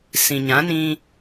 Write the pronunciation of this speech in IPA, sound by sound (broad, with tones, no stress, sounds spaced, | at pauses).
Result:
s ĩ˨ ɲ ã˨˦ n ĩ˧